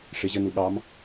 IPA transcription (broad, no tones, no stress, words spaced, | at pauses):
ʂɪʑənu ɠɑm